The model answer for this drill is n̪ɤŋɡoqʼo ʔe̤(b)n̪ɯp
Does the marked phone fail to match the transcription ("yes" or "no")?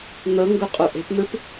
yes